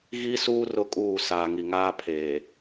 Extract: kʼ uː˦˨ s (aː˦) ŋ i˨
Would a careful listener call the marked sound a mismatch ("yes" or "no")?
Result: yes